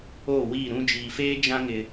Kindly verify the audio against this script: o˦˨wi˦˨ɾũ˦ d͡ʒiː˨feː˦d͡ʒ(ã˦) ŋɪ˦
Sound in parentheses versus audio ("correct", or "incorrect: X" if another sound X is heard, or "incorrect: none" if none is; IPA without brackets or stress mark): correct